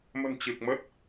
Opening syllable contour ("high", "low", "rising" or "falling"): low